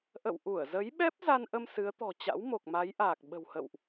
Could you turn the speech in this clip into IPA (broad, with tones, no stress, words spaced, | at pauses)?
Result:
ʔə̰˧˨wʔu˧˩ə̯zə˨˦jɓɛ˦˥p̚ za˧nʔə˧m sɨ˨˦ə̯t̪ɔ̤˨˩t͡ɕa̰˧˥wmo˨˩k̚ ma˨˦jʔaː˨˩k̚ɓə̤˨˩whə̰˧˨wʔ